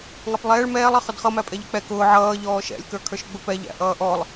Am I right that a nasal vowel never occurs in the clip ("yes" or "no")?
yes